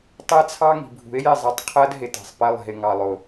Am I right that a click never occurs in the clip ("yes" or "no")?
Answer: yes